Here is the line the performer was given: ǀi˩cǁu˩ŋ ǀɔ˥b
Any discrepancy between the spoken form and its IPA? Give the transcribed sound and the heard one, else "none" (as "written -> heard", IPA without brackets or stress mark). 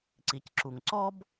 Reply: none